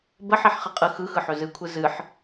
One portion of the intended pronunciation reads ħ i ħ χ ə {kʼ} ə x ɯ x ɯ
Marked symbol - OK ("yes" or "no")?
no